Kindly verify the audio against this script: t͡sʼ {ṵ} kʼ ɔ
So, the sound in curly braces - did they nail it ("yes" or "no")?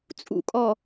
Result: yes